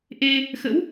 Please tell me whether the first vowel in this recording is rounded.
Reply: no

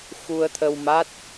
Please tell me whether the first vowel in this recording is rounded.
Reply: yes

